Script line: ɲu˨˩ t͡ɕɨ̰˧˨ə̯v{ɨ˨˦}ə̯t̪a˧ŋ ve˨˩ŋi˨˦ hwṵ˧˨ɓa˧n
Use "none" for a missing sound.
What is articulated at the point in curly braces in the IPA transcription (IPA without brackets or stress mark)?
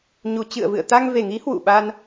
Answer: ɨ̰˧˨